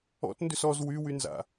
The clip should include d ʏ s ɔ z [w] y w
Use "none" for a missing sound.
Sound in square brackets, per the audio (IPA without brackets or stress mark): w